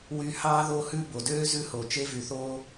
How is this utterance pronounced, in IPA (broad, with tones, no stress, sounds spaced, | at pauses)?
w y˧ h ɑ˦ ð o˧ h ʉ˧ b o˨ d øː˦ z ʉ˧ h o˨ t͡ʃ e˦ v y˨ θ oː˦